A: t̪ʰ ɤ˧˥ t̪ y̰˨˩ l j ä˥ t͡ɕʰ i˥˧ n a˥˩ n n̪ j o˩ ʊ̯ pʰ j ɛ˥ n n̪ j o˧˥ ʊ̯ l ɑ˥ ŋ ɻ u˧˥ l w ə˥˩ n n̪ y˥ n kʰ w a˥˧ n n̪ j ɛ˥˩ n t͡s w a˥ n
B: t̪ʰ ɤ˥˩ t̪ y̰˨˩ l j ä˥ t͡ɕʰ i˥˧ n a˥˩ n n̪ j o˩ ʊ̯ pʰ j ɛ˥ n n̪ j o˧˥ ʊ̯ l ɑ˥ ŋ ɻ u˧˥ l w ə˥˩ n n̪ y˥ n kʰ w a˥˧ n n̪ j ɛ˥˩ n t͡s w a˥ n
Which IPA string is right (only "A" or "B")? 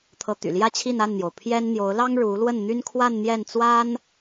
A